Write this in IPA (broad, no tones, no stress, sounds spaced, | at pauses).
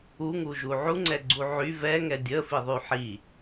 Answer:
u ŋ u ʒ u ʕ u ŋ͡ǀ ɛ ɡ͡ǀ u ʕ y v ɛ ŋ ɛ dʲ ə f i ðˤ y ħ i